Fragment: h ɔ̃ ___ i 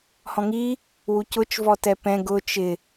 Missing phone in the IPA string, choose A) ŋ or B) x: A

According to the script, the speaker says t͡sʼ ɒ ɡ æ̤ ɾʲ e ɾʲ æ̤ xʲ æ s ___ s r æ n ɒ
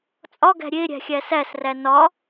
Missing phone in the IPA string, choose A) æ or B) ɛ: A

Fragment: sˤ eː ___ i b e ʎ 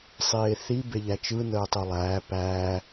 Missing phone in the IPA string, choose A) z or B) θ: B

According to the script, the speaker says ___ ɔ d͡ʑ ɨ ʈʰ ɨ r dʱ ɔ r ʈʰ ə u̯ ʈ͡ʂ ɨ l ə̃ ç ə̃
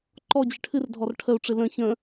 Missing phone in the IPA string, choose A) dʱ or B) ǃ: B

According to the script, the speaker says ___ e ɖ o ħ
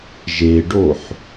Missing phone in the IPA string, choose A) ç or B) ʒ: B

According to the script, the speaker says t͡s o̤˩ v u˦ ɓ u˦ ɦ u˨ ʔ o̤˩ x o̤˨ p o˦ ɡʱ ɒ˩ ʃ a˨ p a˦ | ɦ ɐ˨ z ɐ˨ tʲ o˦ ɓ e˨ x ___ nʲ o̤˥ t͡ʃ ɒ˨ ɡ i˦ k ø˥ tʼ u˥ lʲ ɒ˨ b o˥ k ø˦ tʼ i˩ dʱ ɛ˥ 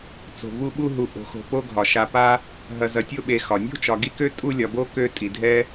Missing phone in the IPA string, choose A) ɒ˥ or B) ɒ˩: B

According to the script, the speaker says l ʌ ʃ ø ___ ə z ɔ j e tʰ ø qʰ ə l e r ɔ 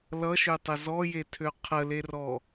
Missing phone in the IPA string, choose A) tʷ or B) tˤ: B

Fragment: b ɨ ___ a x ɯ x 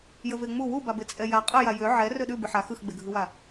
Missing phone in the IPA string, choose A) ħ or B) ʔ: A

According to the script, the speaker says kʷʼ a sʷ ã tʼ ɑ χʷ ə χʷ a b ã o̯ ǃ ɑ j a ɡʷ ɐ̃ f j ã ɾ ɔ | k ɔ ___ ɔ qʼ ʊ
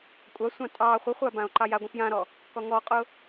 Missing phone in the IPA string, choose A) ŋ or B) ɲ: A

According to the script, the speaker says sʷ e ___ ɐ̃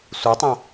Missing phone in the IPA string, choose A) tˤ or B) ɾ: A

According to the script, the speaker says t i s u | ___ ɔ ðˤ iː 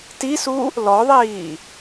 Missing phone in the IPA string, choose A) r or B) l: B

